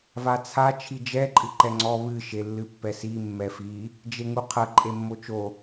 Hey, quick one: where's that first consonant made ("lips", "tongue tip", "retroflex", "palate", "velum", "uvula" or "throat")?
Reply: lips